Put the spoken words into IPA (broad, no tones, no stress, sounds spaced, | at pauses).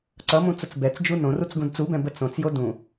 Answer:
ǀ ʌ m ũ t͡s ʊ t͡s b ɛ t͡s d͡ʒ u n õ r u t͡s ɡ ũ d t͡s u b ɛ̃ b ə t͡s õ t͡s j o d ũ